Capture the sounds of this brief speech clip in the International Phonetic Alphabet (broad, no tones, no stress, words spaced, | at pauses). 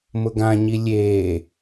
mʊɡãɲi lʲeː